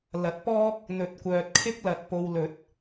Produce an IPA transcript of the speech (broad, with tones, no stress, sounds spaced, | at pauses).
l ɐ˨˥ t̚ p ɔː˥ k̚ | n̪ ɵ˨˥ t̚ kʷ œː˨ t̚ kʰ ɪ˥ k̚ l ɐ˨ t̚ p o˨ w l ɵ˨˥ t̚